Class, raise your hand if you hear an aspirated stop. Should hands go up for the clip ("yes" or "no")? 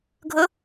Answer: no